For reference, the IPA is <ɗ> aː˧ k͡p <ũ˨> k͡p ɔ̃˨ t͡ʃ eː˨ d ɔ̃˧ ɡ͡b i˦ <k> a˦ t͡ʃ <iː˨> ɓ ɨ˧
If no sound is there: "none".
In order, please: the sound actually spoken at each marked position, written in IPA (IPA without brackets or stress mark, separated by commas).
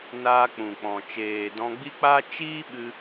n, ũ˨, k͡p, iː˦